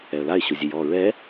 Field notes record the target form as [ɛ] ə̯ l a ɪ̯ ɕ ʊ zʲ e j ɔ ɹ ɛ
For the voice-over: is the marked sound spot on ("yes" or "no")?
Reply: yes